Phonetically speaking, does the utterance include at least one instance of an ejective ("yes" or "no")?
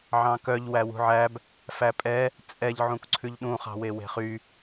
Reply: yes